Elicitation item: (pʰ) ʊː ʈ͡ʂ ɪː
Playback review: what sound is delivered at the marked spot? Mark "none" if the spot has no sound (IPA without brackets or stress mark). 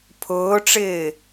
pʰ